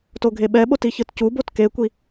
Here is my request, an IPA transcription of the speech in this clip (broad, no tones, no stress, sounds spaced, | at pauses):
t o ɡʱ e ɓ ɛ ɓ o t i ç ɯ t c u b o t k e kʷ i